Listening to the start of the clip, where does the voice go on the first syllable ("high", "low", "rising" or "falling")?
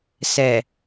low